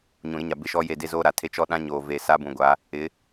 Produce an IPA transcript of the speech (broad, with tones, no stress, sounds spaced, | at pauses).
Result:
ɲ ũ˨ ɾ ɪ˦ ɲ a˨ b ɪ˦ ʃ ɔ˦ j e˦˨ d e˦ z oː˦ ɾ a˨ tʰ e˦ t͡ʃ ɔ˦ ɗ ã˦ ɲ oː˨ v e˨ s a˦ b ũ˨ ɡʷ a˨˦ | ɪ˨˦